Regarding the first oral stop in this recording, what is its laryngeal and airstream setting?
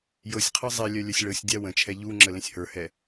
aspirated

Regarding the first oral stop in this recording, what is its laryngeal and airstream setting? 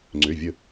click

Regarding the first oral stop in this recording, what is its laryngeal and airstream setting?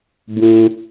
plain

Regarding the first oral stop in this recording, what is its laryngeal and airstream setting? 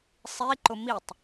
click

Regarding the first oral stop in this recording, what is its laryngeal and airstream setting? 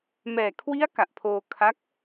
aspirated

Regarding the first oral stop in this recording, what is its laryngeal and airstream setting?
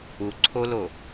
click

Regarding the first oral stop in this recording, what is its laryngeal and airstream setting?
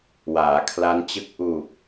aspirated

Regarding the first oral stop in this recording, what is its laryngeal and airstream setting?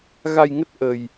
plain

